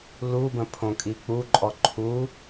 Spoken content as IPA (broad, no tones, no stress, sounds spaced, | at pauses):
l u b ə̃ pʰ õ kʼ i k͡p u ǃʼ ɔ ǃʰ u